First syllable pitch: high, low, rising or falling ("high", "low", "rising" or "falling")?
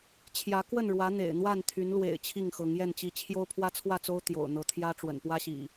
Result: rising